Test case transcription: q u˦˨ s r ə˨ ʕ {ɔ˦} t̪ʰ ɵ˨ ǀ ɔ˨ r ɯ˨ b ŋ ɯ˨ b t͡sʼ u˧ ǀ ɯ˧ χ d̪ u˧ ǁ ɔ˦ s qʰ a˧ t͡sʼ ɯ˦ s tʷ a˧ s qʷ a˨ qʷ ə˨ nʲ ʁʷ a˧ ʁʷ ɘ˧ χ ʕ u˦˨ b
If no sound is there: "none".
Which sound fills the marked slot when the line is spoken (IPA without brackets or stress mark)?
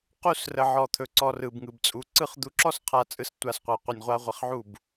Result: ɔ˨